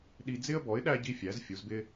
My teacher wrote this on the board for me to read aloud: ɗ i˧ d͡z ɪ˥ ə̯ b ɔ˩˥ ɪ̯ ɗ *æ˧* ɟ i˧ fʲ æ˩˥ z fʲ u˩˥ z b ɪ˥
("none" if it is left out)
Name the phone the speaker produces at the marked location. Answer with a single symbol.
æ˧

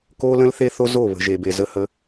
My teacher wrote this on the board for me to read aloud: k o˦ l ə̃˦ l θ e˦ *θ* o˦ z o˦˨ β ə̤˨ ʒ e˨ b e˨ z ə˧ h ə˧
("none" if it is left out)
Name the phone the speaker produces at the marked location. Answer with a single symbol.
θ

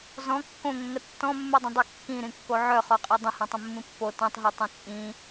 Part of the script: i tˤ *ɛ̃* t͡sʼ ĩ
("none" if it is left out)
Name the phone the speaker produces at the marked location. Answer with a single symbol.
ẽ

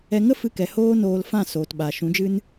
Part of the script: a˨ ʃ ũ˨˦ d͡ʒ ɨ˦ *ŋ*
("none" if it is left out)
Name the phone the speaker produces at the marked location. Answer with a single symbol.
n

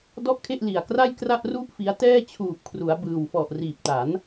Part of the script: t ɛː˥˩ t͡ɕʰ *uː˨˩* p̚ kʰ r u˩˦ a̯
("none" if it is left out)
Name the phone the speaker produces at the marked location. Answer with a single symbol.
uː˨˩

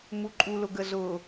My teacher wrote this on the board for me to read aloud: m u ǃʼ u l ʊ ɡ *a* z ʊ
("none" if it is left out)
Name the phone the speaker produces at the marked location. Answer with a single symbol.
ə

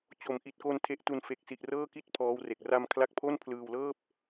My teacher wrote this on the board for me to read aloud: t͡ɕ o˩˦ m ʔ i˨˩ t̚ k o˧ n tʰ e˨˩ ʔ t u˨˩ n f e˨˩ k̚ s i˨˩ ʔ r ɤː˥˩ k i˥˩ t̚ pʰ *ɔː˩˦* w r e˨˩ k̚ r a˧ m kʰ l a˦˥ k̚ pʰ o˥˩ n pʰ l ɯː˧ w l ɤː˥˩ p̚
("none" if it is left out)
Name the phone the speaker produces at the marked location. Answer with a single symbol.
ɔː˦˥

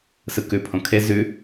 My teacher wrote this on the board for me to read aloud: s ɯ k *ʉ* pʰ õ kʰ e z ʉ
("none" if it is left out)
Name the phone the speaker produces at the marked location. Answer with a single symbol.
ʉ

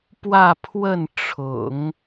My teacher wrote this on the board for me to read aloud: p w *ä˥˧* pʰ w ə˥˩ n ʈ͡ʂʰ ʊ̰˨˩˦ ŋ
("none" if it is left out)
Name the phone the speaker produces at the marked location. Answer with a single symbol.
ä˥˧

